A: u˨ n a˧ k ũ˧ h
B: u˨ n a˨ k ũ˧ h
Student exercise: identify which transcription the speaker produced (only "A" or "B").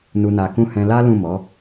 B